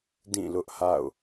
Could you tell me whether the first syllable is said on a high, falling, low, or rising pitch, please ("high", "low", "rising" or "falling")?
falling